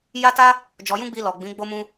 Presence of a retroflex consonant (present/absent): absent